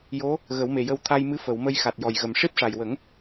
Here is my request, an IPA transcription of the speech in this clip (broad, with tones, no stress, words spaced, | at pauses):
jo˧˥ | ɣə˨˩˦wme˨˩jə˧w t̪ʰa˧jmɨ˧˥ fə˨˩˨w mə˧jxa˨˩t̚jɔ˨˩jɣə˨˩m ʂi˦˥p̚ʂa˨˩jwə˨˩˦ŋ